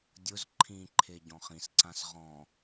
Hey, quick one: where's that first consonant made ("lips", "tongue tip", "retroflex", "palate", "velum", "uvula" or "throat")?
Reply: tongue tip